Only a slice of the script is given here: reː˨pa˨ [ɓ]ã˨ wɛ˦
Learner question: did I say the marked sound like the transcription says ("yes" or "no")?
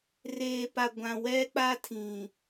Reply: no